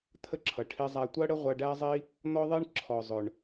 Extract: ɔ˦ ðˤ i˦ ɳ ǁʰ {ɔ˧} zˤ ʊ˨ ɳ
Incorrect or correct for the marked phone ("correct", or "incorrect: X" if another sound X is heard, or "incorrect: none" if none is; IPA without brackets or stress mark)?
incorrect: ɔ˨